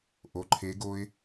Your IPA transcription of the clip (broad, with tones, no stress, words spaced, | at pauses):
ʔo˩˧˩ǃʰe˨˦ ɡo˦ɪ̯